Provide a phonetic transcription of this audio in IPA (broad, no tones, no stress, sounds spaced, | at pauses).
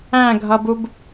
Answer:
æ̃ ɡʱ ʌ b u b